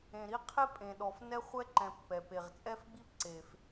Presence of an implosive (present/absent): present